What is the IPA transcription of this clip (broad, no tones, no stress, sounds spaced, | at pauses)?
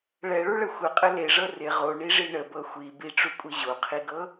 ɭ ɛ ɭ u ɭ ə xʷ ə qʼ ə l e ʐ ɤ r ɪ ʁ o ɳ i ʐ i ɳ ə b ɤ xʷ i b i ʈ͡ʂ u kʷʼ i ʑ o qʰ i ɡ ɤ